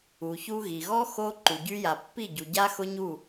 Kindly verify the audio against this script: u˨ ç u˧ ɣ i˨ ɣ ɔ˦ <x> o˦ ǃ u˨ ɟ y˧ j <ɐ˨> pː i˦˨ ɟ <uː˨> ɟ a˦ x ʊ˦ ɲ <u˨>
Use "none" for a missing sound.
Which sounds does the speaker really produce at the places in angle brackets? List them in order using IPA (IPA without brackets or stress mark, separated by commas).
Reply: x, a˨, u˨, u˦˨